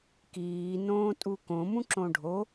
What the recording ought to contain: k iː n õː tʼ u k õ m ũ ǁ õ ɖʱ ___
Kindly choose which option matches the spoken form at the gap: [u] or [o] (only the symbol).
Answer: o